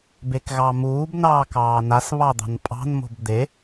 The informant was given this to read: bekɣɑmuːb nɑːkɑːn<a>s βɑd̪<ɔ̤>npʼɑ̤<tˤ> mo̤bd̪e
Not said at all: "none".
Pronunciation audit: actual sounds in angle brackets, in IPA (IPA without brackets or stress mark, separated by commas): a, ɑ̤, n